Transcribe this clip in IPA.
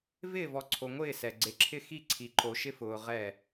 vɪː˦˨vɔ˨ ǀʰo˨ŋʷɪː˦˨sɛ˨ ɡ͡ǀe˨ǁʰɪ˦ xi˦ ǀʰi˨ǃo˨ʃɪ˦fʊː˨ ʁɛ˦˨

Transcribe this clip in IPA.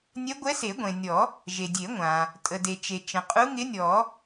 nʲɛ˧˥ɡʷɛ˧˥ se˨˩˦ɡʷẽ˩nʲɔ˨˩˦ | ʒe˩dʲe˨˩˦ ŋʷã˩ | tʼə˩de˩t͡ʃe˩ t͡ʃə̃˩qʼu˧˥ ŋɪ˧˥nʲɔ˨˩˦

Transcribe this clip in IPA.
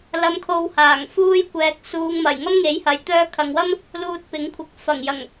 lɐ˨mkʰo˨w haː˨˩ŋfuː˥j kʷɛː˨k̚ suː˨ŋmɐ˨˩j ŋɐ˥mŋe˨˥jhɐ˨j t̪œː˧kʰɐ˨ŋwɐ˥m | luː˧t̚pɪ˨˥ŋkʷʰɪ˨˥k̚ fɐ˨˩ŋjɐ˨˩ŋ

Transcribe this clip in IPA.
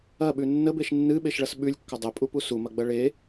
ɐɓʉ nːəbeʃ nːɨɓeʃɭɐs ɓʉlʲkːɐ dˤepʼupu sumɐɡ͡bɐ ɭe

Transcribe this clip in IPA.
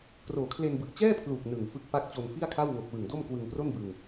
kroː˨˩kʰle˧nbɯ˨˩k̚ t͡ɕɛː˥˩pʰluː˨˩k̚ nɯ˨˩ŋfɯ˦˥k̚ pa˦˥k̚t͡ɕo˧nfi˥˩a̯kʰa˥˩w ŋo˨˩k̚wɯ˨˩ŋ do˥˩mkwɯ˧ŋpro˥˩nbɯ˧ŋ

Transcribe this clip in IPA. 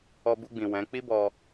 ɔ˧bu˧ɡ͡bĩ˨ wɛ̃˨˦ k͡pi˦bɔ˧

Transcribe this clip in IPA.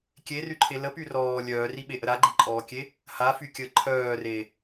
kʲeryǃʰe ləpy rɔː lʲœːriɓeʔə ɾaɡ͡ǃiǃʼɔːkʲe | hafykʲəː ǃʰœːre

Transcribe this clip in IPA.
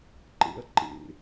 ǃḛɐ̯ǃḛ

